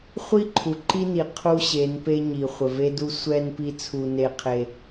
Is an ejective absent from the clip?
yes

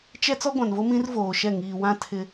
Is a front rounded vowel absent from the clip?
yes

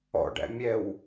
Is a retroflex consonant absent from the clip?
no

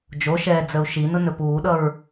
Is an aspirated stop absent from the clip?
yes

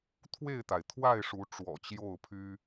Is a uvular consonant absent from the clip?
yes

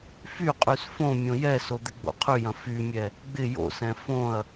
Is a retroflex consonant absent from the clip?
yes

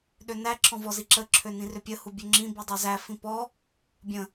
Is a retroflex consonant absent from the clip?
yes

